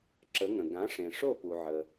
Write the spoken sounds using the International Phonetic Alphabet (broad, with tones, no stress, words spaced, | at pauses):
ǁə˩˥ŋə̃˩ ɡã˩˥ʂẽ˩ʂo˥˩ pu˩ʕə˩